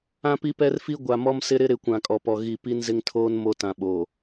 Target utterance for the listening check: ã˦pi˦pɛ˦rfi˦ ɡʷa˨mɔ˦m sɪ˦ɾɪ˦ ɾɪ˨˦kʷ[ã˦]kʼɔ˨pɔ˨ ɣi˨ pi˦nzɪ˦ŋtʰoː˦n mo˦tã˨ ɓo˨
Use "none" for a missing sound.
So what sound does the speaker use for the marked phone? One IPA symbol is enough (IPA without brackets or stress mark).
ã˨